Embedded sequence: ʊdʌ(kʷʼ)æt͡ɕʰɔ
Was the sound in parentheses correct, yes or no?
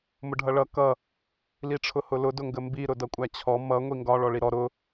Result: yes